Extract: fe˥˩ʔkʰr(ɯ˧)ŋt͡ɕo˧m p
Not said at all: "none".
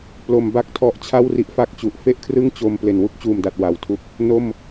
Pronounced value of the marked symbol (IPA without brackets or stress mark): ɯ˥˩